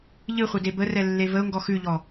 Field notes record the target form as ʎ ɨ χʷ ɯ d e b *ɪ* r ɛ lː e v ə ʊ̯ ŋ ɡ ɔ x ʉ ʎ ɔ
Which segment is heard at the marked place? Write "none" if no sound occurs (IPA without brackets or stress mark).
ə